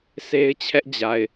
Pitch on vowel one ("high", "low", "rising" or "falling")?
high